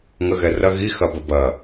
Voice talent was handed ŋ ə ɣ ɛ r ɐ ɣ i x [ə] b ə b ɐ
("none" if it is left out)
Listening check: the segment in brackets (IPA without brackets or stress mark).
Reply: ɐ